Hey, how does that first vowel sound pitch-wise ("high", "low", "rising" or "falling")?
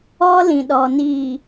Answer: high